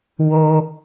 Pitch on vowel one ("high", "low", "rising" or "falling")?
high